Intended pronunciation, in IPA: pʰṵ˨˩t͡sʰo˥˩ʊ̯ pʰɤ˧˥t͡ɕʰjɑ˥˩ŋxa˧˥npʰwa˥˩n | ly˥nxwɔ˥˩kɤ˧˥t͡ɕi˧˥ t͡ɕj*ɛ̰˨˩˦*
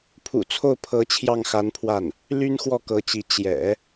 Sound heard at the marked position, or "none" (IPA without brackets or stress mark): ɛ̰˨˩˦